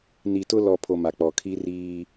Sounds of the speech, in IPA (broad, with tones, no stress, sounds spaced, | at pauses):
n i˨ t ʊ˦ l ɔ˨ pʰ o˨ m a˨ k͡p ɔ˨ kʰ i˦ r iː˦